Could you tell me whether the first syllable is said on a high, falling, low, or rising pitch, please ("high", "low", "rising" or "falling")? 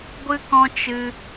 high